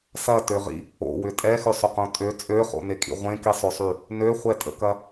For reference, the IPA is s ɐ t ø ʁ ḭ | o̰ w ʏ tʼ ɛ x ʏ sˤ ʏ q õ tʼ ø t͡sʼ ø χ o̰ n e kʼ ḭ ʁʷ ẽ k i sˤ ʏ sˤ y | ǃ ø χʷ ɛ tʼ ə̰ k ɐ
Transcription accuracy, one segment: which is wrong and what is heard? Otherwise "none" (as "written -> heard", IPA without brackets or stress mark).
ǃ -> n